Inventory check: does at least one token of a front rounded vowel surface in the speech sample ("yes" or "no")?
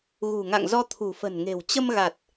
no